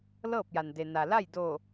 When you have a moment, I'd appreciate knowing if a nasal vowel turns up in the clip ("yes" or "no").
no